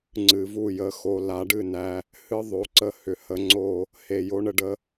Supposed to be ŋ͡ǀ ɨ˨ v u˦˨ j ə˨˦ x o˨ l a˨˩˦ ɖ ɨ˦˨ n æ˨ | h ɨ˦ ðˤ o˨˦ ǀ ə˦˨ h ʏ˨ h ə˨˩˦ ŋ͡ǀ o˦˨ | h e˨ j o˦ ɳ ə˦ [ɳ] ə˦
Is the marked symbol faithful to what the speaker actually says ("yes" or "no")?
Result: no